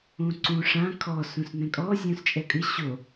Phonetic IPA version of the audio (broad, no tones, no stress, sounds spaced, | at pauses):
ũ ǀ ũ ʂ ã kʰ ɔ s ũ s n ɛ̃ kʼ ɔ zʲ ũ s t͡ʃʼ ɛ kʼ ɨ ɕ o